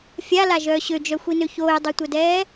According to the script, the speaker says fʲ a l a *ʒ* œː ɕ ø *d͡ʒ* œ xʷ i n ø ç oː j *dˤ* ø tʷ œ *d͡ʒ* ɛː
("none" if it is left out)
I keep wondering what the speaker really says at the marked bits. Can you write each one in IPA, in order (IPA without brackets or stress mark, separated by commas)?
ʒ, d͡ʒ, dˤ, d